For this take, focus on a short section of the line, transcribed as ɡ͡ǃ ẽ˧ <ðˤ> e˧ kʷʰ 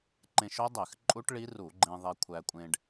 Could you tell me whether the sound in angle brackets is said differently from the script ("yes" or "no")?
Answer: no